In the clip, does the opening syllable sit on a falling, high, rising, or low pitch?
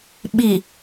low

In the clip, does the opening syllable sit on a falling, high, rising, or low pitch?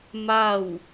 falling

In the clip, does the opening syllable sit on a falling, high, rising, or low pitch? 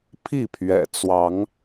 falling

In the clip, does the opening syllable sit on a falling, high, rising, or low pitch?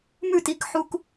falling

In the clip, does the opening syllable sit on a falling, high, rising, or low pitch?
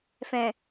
low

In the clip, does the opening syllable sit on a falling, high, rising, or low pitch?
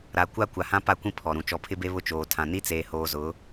low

